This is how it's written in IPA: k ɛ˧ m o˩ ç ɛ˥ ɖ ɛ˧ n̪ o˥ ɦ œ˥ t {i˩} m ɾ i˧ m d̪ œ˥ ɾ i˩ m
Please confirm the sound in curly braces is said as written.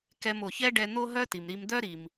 yes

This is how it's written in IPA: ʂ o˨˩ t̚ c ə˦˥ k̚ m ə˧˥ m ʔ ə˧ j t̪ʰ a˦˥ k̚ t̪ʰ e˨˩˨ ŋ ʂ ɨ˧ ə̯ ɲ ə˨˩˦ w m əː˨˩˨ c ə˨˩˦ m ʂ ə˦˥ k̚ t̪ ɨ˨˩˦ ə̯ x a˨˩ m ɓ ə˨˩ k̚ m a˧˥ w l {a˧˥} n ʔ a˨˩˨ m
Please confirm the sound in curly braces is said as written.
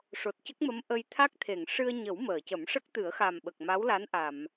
yes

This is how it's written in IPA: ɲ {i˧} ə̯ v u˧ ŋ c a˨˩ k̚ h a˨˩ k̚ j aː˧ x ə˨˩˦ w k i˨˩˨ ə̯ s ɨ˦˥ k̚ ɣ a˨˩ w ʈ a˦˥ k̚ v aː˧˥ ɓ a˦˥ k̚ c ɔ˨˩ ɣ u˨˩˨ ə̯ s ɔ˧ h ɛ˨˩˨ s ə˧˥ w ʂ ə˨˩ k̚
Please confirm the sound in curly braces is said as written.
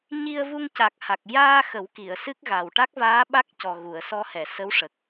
yes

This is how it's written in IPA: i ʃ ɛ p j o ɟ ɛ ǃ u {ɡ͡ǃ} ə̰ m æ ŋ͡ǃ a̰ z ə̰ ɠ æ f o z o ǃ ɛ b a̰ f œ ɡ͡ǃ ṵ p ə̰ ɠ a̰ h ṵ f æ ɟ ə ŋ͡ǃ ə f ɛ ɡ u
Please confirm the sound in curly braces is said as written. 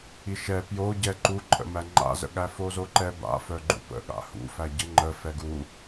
no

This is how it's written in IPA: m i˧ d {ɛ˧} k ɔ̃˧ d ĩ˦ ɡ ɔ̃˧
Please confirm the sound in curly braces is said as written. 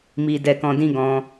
yes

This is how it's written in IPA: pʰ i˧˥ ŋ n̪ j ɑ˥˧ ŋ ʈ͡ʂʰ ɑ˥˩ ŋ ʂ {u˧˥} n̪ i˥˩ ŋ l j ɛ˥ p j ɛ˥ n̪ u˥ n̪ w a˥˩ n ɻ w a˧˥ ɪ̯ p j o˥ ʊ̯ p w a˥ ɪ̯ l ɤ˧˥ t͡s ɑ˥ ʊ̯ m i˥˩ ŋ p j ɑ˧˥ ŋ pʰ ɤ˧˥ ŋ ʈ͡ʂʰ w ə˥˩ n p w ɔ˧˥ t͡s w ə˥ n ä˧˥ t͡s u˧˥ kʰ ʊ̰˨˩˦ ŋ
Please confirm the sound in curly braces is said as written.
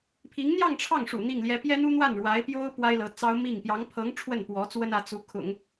no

